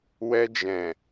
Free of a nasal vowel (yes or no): no